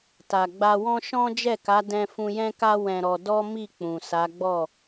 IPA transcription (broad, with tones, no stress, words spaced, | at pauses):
ta˨ɡ͡ba˧wɔ̃˦ ʃɔ̃˦ d͡ʒɛ˦˨ka˨˦ dɛ̃˦ fũ˧jɛ̃˦ka˦ wɛ̃˧ɾɔ˧ dɔ˦mi˦˨ k͡pũ˨sa˨˦ɡ͡bɔ˦˨